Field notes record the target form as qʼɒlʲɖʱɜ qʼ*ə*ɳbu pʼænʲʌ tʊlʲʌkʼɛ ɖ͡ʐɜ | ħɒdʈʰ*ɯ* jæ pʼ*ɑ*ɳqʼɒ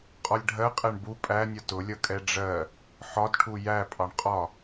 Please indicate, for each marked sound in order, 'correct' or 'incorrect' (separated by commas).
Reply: incorrect, incorrect, correct